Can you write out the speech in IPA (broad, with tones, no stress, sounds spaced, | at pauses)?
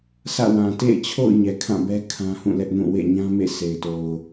sʰ ä̰˦˨ w ã˨ t ḛ˦˨ ɪ̯ t͡ɕʰ o̰˦˨ ʊ̯ ɲ ɛ˨ kʰ ã˦˨ b ɛ˦ kʰ ã˦ h ũ˦˨ l ɛ˦ ʔ n ũ˦˨ w ḛ˦˨ ɲ ã˦ m ḛ˦˨ s e˨ ɪ̯ t o˨ ʊ̯